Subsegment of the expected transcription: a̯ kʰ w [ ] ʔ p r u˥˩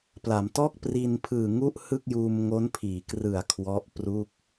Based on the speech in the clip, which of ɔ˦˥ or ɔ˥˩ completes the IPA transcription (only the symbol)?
ɔ˦˥